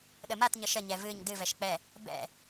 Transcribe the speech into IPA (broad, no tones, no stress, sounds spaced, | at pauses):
ɗ ə m a t ɲ ə ʃ ə ɲ ɛ v ɨ ɲ d ɨ v ɛ ʃ k͡p ɛ | b ɛ̰